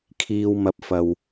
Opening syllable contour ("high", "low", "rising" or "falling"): low